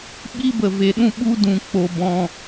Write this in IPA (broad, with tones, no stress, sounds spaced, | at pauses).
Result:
ɓ i˦ b ə˨ v e˨ ɗ ũ˧ ɓ u˧ d ũ˨ k͡p o˨ b ɔ̃˨